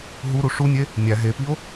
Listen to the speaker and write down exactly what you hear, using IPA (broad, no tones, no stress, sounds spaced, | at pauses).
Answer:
ɦ u ɾ u ʂ u nʲ e | nʲ æ ɦ e p i o̯